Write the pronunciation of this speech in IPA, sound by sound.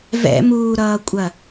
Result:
v ɛ̰ m uː ɾ ʌː kʷʼ ɐ

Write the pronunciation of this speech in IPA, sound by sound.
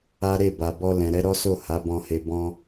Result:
a˦ ɾ e˦˨ b a˨ b ɔ˧ l ɛ̃˨ ɾ ɛ˨˦ ɾ ɔ˦ s o˦˨ h a˨˦ b ɔ̃˧ h e˧ b ɔ̃˧

